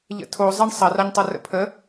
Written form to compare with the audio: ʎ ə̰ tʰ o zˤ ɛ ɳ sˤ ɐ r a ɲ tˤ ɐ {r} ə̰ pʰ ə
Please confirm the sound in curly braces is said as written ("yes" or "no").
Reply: yes